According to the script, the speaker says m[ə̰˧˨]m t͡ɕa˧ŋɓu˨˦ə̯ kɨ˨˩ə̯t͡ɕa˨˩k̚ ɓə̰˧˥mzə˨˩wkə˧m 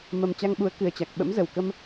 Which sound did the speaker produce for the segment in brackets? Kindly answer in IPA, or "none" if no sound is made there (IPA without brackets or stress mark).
ə˨˩